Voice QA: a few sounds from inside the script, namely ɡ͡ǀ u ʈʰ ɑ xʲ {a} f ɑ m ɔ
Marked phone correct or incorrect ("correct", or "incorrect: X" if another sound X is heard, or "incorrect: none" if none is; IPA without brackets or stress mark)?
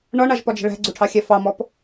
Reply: incorrect: æ